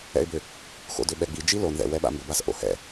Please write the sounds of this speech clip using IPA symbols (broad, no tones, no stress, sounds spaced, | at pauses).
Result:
ɛ̰ ɪ̯ b ʏ | x o̰ d ʏ ɓ ɛ ɡ͡b i d͡ʒ i l o n ð ɛ̰ w ɛ ɓ a̰ m b ʏ b a s ʔ o̰ h ɛ̰